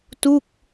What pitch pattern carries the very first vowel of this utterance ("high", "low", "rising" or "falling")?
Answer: falling